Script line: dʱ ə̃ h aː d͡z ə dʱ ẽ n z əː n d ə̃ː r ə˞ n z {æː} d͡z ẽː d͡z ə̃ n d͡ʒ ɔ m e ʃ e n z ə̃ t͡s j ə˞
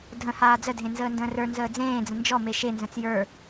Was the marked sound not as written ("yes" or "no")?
yes